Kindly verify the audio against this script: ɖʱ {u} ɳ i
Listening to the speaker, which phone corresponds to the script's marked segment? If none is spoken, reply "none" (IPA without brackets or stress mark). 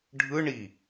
ɯ